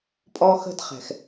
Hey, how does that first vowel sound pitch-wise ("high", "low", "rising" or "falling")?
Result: high